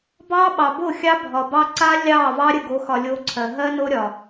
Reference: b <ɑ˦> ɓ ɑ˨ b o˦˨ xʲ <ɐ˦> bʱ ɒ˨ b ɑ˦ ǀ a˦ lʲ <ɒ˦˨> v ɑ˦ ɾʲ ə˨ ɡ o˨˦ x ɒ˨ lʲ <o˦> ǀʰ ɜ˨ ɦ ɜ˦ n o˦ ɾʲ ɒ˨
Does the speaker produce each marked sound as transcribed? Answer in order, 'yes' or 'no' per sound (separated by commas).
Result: yes, no, no, yes